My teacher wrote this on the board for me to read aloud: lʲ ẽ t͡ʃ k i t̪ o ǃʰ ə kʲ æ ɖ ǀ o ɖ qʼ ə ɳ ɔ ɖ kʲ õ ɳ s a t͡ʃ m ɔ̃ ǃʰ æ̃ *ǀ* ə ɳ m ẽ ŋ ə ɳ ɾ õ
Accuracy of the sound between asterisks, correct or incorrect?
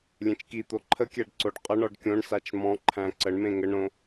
correct